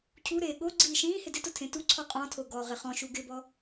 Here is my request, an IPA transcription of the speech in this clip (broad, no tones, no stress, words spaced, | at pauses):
cʰu ɾeːɠoɡ͡ǀiː ʃĩːhɪ dɪtʊ tʰẽtuǀʰɔ qʼɔ̃tʰo ɡɔːʁɪχɔ̃ʃu ɡɪbɔ